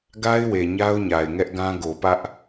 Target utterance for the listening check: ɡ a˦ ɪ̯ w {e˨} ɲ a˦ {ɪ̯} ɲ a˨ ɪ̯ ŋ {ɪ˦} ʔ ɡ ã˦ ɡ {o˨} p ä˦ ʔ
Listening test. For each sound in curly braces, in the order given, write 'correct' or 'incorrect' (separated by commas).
correct, incorrect, incorrect, correct